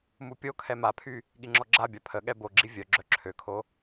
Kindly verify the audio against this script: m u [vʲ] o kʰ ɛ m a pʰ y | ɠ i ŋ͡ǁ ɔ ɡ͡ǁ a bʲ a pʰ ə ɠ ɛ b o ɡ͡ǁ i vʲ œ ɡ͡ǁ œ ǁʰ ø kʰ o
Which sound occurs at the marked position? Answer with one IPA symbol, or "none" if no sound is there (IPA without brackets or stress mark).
pʲ